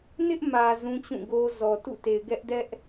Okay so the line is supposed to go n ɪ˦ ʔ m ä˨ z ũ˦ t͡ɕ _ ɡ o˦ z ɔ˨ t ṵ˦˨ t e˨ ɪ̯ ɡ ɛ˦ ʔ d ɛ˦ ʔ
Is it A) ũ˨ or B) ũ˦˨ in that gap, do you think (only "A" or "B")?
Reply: B